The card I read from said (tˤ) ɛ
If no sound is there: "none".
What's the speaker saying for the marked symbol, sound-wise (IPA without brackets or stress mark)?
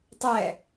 tˤ